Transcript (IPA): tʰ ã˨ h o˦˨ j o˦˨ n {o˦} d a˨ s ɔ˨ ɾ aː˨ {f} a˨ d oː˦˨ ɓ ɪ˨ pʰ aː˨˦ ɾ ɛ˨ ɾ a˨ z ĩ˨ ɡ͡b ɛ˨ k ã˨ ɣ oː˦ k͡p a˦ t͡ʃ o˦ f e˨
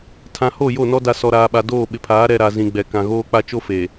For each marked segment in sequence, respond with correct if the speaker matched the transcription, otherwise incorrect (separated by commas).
incorrect, incorrect